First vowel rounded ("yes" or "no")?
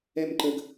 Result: no